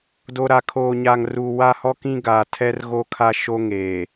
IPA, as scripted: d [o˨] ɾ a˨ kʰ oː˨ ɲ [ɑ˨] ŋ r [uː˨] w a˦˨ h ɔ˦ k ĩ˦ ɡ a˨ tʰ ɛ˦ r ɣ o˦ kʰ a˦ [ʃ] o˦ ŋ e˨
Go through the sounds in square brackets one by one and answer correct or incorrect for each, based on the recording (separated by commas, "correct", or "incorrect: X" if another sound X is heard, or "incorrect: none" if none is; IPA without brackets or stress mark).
correct, incorrect: a˨, incorrect: u˨, correct